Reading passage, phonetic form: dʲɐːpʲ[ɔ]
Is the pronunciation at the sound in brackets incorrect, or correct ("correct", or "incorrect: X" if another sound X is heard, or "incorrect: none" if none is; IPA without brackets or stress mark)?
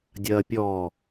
correct